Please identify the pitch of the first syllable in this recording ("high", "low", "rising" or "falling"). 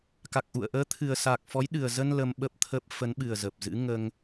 low